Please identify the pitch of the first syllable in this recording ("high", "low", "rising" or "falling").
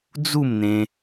falling